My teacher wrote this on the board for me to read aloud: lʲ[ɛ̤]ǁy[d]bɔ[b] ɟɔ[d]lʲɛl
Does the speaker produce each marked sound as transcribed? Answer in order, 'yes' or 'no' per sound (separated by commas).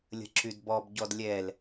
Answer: no, yes, yes, yes